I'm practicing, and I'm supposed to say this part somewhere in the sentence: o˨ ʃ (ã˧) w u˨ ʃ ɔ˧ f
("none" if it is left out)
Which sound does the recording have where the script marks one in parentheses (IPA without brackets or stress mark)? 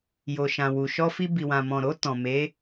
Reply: ã˨